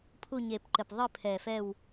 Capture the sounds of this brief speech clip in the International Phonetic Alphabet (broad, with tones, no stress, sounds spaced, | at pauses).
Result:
pʰ u˦˨ ɲ e˨˩ p ǃ ɘ˨˩ p ðˤ ɨ˦˨ pʰ ɛ˨˩ f ɛ˦˨ w